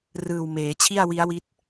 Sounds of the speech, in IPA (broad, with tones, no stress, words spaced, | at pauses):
rɯː˨˩wmeː˩˦ t͡ɕʰi˥˩a̯wi˦˥a̯wi˦˥t̚